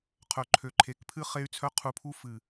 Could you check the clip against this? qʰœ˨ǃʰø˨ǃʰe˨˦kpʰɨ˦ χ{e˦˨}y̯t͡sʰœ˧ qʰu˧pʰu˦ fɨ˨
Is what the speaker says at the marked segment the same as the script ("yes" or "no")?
no